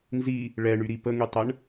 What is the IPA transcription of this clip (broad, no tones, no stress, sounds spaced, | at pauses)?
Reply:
n z i | ɭ ɛ ɳ y ɾ i p ə ŋ y tˤ ə ɳ